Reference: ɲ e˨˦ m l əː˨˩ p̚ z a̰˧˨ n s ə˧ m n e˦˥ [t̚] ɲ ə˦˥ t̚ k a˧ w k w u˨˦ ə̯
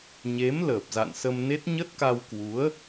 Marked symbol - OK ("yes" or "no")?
yes